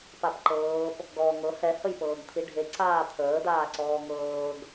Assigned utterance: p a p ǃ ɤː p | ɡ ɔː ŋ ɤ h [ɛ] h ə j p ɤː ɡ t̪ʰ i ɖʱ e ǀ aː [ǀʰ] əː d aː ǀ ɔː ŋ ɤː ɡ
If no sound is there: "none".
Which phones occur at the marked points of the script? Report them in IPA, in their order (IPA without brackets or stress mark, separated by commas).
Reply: ɛ, t̪ʰ